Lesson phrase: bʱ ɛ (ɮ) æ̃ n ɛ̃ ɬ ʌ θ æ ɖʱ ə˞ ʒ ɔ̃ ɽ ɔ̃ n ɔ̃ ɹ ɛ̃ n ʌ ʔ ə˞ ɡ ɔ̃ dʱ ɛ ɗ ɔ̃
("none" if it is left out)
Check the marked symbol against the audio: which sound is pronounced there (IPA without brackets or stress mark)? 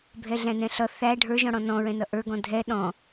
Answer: ɮ